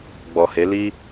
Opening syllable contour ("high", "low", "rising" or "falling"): low